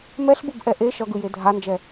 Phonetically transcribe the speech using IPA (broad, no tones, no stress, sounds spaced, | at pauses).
m ɛ ɬ b ɯ b ʔ ɛ ʔ e ʃ ʌ ɡ ɯ j e dʱ a n d͡ʒ ɛ